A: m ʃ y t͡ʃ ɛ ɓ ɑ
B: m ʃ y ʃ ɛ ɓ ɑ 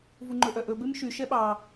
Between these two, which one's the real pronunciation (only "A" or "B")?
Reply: B